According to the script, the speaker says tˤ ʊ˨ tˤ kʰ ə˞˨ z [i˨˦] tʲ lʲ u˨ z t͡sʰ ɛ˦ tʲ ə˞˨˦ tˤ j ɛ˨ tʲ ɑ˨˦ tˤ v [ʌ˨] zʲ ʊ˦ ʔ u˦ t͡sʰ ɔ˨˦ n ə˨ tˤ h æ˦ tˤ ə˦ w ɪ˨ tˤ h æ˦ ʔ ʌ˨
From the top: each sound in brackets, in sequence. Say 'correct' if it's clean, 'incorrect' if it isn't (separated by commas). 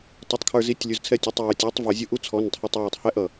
correct, correct